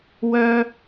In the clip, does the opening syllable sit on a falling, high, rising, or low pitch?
high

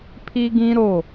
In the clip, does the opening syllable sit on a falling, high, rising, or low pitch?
high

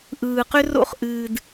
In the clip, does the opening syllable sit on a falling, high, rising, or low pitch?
low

